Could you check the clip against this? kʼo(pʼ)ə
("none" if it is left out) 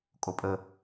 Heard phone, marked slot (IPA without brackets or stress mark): pʼ